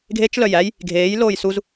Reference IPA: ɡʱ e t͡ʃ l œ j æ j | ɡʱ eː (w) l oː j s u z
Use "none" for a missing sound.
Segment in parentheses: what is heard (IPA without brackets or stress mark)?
j